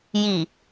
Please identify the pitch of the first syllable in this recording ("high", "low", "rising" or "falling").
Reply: low